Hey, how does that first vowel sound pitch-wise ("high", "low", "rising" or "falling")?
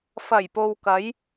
low